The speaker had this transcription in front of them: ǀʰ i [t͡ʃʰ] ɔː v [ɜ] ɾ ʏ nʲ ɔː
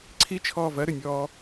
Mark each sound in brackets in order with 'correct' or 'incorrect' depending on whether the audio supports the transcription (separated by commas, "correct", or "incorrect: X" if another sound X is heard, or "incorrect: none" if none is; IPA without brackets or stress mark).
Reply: correct, correct